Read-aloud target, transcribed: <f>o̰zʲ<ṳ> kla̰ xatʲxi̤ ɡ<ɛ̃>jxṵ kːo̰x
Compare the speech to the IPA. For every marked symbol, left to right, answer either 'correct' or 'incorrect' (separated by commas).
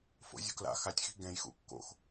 correct, correct, correct